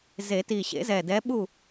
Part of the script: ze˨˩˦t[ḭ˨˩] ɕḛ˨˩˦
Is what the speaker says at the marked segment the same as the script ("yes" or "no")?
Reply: no